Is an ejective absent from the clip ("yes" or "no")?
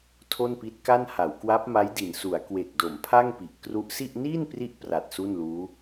yes